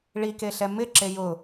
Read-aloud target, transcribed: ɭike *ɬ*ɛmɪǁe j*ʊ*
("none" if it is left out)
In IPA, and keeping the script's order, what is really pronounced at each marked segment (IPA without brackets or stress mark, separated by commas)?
ɬ, ʊ